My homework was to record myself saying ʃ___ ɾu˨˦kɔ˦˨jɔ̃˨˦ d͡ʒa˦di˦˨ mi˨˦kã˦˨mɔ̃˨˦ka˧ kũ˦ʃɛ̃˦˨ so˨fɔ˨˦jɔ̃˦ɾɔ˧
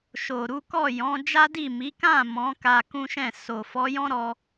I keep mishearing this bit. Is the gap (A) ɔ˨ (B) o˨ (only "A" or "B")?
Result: B